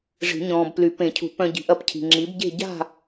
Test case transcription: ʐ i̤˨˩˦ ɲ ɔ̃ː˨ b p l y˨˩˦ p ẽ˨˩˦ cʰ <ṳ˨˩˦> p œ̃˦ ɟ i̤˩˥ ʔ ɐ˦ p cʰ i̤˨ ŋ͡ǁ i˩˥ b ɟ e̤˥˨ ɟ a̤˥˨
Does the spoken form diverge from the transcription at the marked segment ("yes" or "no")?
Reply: no